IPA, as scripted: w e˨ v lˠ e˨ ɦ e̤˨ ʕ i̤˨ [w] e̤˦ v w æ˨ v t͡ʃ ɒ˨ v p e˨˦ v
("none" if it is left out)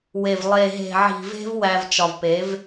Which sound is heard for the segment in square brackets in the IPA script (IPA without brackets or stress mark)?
v